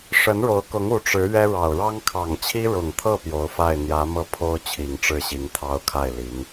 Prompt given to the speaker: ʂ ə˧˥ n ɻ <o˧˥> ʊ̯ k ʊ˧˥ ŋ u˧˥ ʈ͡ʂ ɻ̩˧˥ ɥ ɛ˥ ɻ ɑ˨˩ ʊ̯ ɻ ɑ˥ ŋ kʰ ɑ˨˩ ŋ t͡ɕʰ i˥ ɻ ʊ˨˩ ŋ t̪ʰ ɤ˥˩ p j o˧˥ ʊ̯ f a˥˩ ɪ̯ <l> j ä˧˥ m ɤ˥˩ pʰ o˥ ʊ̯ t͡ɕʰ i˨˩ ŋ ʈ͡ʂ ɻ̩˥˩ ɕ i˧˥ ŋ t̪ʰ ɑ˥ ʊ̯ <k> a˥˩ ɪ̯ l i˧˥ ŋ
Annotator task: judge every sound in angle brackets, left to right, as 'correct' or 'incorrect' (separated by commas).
correct, incorrect, incorrect